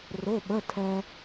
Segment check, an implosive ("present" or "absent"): present